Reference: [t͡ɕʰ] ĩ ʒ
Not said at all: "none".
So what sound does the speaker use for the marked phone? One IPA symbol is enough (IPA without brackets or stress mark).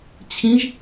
t͡ɕʰ